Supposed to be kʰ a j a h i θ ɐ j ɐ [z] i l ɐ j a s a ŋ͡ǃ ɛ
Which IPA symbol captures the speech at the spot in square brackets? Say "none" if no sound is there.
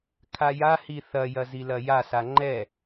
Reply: z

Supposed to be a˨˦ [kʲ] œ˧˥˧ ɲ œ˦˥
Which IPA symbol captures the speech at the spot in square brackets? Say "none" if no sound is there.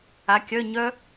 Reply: kʲ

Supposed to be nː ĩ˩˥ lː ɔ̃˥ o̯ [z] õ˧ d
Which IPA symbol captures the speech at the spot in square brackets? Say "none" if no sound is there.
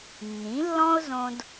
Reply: z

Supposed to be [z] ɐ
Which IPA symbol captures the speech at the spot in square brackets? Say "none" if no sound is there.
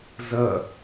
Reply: z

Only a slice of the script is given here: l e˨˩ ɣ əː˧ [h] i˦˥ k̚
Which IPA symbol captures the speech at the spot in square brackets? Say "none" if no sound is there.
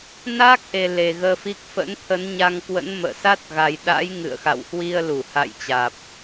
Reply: f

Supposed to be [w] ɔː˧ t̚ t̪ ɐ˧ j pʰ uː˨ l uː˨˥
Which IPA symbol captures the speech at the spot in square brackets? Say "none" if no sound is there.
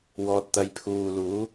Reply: w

